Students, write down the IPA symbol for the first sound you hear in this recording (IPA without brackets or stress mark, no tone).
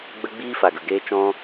ɡ͡b